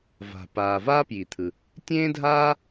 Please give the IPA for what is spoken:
va̤˩paː˩ vaː˥pji˩t̪ʰɯ˩ | tʲẽː˥dʱaː˥

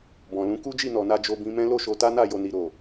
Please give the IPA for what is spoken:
bɔ̃˨lũ˨˦ ku˦d͡ʒi˦˨nɔ˨na˧ d͡ʒo˧bĩ˧mɛ̃˦ lo˦˨ʃo˧ta˦na˦˨ jo˨ni˨ ɾo˨

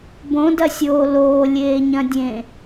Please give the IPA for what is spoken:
bõdɐsʲoː loːlʲeːɲɐ̃dʲẽ

